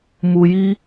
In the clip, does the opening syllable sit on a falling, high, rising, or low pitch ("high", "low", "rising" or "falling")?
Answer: low